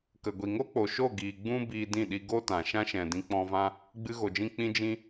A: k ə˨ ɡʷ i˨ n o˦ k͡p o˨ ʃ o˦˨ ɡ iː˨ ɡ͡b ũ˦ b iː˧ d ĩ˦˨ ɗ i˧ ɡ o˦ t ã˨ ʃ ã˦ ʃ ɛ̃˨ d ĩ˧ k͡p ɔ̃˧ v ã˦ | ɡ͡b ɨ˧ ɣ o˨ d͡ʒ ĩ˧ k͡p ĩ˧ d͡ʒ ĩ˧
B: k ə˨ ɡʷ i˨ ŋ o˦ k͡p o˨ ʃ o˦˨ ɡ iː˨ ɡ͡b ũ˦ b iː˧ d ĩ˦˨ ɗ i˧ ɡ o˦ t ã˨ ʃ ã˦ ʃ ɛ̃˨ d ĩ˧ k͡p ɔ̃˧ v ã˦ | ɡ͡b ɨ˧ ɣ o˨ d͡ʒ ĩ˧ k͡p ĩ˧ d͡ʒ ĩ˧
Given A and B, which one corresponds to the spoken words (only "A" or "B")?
B